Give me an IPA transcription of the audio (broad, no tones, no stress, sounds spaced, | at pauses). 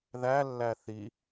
ð æ lː æ θ i